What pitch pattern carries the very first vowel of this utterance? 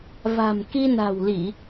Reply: low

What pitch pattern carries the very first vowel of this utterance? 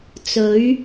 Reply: rising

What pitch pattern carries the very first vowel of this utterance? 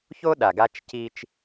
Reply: high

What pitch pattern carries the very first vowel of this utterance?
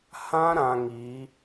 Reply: high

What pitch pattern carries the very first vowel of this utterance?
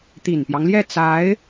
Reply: low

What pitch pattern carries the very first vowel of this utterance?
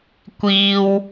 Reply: low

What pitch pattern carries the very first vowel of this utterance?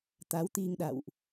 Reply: rising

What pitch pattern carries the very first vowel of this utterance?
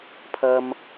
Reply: high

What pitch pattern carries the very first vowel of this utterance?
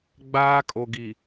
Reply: high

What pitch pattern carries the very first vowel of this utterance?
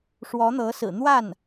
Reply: rising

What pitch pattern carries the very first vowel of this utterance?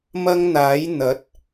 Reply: high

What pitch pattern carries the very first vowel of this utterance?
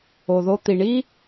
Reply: low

